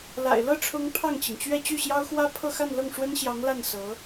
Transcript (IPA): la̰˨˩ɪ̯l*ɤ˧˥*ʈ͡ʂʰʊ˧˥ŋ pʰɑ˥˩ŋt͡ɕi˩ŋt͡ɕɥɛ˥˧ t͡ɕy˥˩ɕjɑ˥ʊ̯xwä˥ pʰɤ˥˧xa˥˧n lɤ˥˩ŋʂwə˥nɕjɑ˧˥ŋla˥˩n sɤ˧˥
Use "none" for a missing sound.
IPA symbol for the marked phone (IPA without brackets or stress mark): ɤ˥˩